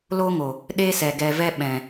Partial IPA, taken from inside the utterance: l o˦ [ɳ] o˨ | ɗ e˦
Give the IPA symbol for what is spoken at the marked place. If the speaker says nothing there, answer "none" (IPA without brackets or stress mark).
ŋ